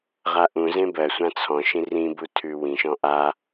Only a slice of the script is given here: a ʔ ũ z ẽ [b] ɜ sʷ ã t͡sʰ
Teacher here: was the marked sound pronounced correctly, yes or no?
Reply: yes